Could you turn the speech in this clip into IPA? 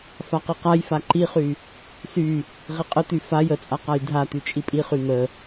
faqiqajfa ǃiχy | sy | ʁiqʼət̪y faj ət͡sʼa qajdʱat̪y t͡ʃʼipʼiχy n̪ə

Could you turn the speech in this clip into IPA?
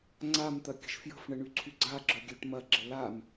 ŋ͡ǀamt̪ɐ kʲə̤ʃfjə̤fɳə ɳyǀʰyɡ͡ǀaɡ͡ǁœ ɡʲøʈmɐɡ͡ǁə lam

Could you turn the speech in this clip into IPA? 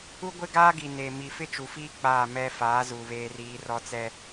u˦ ɡʷɪ˦ɡaː˦ɡi˨ neː˨ mi˨fɪ˦t͡ʃu˨fiː˦ k͡paː˦˨mɛ˦ faː˨˦zu˨ βeː˦riː˦ rɔ˦t͡sɛ˦

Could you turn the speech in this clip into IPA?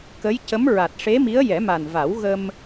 kə˧˥jcə˧˥m ɹa˨˩t̚ʂe˧˥mi˧˥ə̯ jɛ˨˩˦ma˨˩nva˨˩˦w ɣə˧m

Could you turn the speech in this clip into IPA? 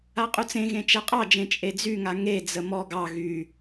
aqʼut͡sẽɣẽ t͡ʃɛqʼɑd͡ʒẽ t͡ʃʼed͡zyŋa ŋed͡zə mɔ ɡɑ ɣy

